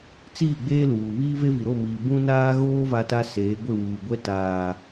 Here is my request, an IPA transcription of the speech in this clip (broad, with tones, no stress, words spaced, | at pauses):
t͡siː˦˨ɡ͡beː˦luː˨ βiː˦ve˦vi˨ɾo˦˨ miː˨bũ˦ naː˦ɣoː˦ va˦ta˦seː˨˦ ɡʷɪ˦˨wuː˨ɡʷɛ˦ taː˨